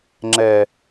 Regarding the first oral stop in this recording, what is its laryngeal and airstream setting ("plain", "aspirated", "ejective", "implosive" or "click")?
click